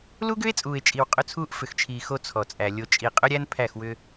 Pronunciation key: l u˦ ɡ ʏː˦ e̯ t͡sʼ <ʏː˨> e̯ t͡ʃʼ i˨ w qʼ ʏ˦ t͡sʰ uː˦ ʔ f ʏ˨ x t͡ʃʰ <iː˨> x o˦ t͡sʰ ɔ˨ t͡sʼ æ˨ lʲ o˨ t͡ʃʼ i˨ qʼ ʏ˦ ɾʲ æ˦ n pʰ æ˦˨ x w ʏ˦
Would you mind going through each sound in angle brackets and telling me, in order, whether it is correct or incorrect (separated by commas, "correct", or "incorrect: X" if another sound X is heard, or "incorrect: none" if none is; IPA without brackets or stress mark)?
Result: incorrect: uː˨, correct